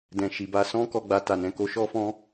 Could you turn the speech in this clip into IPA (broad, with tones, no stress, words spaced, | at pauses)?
dɛ̃˨ ʃi˨ba˧sɔ̃˦ kɔ˧ɡ͡ba˨ ta˨nɛ̃˨ko˧ ʃɔ˦fɔ̃˦